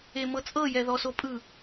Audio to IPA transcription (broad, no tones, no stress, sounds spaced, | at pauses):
e m ɤ t͡sʼ ɤ j ɛ ð ɔ s o pʼ ɯ